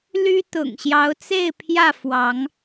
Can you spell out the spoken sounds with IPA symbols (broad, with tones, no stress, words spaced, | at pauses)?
ly˦ t̪ʊ̰˨˩ŋɕjɑ˨˦ʊ̯t͡se˥˨ɪ̯pʰjä˥˨ fwɑ˨˦ŋ